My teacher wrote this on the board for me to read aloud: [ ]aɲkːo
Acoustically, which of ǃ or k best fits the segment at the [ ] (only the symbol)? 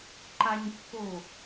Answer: ǃ